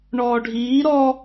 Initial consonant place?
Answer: retroflex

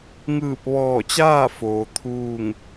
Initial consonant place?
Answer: velar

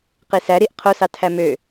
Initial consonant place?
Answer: uvular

